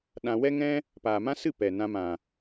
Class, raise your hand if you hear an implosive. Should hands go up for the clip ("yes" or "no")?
yes